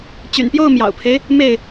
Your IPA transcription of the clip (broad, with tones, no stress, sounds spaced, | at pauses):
t͡ɕ y̰˨˩ n p j o˥˨ ʊ̯ m j ɑ̰˨˩ ʊ̯ pʰ e˦ ɪ̯ | m e˥˨ ɪ̯